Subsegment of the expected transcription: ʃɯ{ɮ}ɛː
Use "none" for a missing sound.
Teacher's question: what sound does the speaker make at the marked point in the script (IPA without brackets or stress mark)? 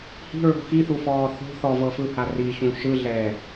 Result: ɮ